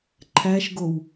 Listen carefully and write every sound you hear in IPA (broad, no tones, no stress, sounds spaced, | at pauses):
ǃʰ æ ʃ ɡ o w